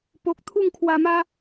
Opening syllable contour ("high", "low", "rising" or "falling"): low